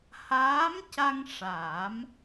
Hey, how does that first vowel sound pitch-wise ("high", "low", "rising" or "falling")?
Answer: rising